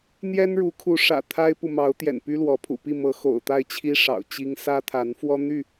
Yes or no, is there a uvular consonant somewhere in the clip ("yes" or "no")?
no